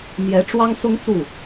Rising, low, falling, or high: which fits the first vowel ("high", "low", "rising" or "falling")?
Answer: rising